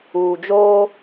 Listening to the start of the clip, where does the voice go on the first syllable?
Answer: low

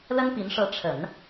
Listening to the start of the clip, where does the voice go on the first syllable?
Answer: high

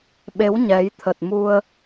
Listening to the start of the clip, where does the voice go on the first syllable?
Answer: rising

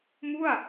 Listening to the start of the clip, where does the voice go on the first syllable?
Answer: falling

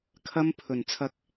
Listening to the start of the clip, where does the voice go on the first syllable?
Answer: high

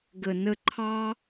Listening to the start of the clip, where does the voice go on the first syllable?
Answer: low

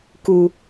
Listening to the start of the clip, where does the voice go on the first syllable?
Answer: low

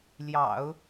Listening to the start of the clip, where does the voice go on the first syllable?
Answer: low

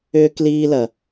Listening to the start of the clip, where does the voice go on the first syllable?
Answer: high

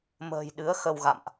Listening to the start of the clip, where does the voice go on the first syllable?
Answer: low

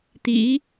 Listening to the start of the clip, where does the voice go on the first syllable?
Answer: rising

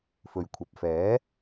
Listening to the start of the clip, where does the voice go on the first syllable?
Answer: low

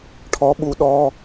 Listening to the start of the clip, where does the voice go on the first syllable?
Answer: rising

